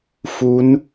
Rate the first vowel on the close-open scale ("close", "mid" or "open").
close